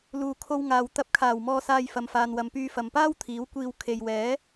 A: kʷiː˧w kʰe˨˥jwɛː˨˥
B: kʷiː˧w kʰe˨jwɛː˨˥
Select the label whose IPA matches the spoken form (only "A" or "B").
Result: B